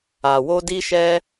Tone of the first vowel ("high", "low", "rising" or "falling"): low